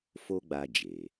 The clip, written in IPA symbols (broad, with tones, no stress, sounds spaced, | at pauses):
f o˦ ɡ͡b a˧ d͡ʒ e˨